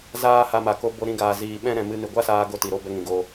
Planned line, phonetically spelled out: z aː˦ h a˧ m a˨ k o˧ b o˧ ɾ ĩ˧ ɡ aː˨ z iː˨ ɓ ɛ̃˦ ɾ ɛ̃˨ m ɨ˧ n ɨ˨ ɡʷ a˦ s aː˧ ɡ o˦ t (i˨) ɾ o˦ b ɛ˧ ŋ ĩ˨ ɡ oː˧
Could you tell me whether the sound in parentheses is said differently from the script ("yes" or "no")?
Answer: no